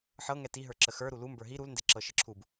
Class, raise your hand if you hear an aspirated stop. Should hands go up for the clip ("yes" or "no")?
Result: yes